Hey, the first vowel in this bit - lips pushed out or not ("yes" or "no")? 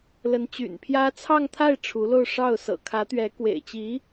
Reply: no